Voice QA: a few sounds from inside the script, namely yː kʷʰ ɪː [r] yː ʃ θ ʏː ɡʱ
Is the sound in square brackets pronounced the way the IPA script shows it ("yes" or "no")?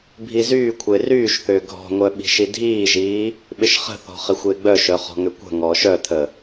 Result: yes